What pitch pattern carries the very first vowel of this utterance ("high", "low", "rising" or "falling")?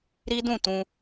high